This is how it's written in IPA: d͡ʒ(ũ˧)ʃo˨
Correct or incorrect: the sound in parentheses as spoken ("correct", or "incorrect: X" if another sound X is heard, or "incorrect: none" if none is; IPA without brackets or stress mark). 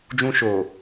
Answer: correct